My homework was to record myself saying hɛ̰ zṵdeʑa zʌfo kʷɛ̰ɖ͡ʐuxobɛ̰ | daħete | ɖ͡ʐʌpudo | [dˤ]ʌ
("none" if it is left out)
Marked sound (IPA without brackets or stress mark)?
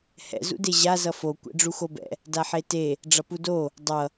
dˤ